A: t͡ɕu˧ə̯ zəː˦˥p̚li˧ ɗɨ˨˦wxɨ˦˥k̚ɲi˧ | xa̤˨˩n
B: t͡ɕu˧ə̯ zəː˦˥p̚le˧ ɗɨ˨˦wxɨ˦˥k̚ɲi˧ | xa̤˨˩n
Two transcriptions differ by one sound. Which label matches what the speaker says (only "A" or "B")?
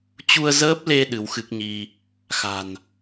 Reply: B